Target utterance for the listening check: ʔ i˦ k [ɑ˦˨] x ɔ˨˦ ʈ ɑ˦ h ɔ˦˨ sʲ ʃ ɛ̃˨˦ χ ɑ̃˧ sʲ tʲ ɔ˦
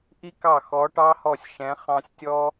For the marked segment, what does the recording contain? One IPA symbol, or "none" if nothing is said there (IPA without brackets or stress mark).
ɑ˦˨